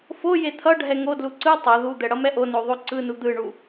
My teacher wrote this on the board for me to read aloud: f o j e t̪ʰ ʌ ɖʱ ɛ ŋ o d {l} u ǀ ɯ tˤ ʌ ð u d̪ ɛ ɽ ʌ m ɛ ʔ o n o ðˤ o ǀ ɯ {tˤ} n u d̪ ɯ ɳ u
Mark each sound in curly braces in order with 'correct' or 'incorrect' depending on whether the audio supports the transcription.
correct, incorrect: none

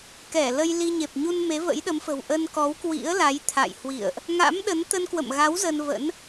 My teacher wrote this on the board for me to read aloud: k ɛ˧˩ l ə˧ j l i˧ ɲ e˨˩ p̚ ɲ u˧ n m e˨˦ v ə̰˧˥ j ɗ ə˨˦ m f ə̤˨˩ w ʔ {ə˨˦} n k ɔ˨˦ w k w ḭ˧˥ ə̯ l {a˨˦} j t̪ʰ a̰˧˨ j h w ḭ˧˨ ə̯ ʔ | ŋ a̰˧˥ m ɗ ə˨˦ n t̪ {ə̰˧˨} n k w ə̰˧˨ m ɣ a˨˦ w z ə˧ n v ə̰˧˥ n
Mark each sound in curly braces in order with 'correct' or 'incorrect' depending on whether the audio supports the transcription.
incorrect: ə˧, correct, incorrect: ə˧

